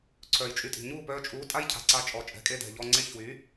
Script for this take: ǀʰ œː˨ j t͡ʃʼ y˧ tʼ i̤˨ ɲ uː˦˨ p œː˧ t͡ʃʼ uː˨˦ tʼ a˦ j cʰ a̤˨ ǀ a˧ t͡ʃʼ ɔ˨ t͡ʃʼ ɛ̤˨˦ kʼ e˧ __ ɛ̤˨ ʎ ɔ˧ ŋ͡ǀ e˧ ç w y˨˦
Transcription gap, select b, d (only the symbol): d